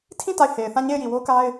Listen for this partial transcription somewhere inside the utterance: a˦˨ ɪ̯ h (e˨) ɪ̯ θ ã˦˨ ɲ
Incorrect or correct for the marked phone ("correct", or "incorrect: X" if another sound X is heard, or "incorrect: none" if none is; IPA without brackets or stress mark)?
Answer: correct